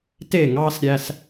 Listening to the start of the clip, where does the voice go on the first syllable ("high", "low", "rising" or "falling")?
falling